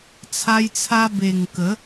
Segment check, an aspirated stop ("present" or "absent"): present